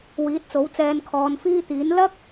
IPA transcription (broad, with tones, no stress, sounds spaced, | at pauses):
w iː˨˥ t̚ t͡s o˨˥ w t͡s ɛː˧ n kʰ ɔː˨˧ n f iː˥ t̪ iː˨˥ n l ɐ˥ k̚